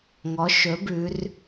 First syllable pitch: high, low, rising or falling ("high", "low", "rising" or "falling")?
rising